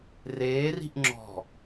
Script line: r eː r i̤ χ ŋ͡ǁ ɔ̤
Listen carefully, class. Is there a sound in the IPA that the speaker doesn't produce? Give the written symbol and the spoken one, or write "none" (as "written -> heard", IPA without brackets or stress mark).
χ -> ʔ